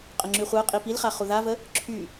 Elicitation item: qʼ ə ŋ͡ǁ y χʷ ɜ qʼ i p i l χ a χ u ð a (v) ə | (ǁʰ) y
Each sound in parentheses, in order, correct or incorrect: correct, correct

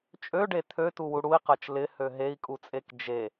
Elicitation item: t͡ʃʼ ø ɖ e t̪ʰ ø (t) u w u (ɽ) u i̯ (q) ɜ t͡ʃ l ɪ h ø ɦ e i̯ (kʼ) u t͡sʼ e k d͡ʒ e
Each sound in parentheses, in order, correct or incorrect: correct, correct, correct, correct

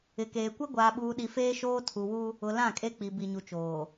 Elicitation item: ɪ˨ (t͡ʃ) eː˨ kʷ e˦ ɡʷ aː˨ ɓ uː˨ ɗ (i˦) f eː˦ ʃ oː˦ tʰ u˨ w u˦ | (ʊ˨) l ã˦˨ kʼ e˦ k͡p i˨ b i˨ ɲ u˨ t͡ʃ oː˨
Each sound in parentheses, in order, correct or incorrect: incorrect, incorrect, correct

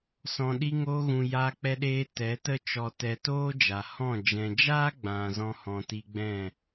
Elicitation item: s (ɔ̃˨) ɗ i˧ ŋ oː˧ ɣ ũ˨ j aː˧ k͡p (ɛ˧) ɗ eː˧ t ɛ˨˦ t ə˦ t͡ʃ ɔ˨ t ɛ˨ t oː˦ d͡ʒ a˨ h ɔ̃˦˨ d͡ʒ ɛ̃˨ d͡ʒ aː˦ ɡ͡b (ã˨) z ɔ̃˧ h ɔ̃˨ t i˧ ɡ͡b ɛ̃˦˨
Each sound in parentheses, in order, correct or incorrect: correct, correct, correct

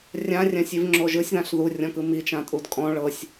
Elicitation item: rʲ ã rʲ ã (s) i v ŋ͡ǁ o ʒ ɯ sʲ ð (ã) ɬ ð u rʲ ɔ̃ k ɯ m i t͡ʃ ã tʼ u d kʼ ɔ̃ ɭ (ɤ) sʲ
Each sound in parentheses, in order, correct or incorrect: incorrect, correct, correct

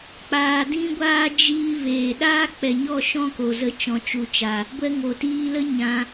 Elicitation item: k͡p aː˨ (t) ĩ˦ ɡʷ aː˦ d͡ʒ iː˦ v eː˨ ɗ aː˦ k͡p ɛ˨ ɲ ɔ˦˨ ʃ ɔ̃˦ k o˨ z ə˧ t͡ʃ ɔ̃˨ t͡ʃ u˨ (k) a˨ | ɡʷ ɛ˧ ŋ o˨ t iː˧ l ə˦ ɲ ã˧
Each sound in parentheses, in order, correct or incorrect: incorrect, incorrect

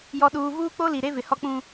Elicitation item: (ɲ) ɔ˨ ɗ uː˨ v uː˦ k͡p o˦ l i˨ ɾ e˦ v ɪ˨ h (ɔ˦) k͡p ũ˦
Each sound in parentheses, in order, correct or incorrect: incorrect, correct

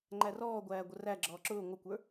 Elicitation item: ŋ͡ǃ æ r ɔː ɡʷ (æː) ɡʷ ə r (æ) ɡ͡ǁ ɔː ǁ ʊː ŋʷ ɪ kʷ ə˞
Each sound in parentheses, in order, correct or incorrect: correct, correct

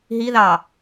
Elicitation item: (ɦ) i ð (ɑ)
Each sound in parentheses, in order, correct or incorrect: correct, correct

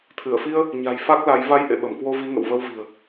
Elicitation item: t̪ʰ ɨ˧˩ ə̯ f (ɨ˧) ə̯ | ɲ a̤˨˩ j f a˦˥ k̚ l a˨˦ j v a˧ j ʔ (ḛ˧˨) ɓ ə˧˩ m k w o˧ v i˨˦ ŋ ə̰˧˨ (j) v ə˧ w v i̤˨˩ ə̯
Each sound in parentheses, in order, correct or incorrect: incorrect, correct, incorrect

